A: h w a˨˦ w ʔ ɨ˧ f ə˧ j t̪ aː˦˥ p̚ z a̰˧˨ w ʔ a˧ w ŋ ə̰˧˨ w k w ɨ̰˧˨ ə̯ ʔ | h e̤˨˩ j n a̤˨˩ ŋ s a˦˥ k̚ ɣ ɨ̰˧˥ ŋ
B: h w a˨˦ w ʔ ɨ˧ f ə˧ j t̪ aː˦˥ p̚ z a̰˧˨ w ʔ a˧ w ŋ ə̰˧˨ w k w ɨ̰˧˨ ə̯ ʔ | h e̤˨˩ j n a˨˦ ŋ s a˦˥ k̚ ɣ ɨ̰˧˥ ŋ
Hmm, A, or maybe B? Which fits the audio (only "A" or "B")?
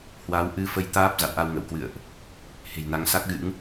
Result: B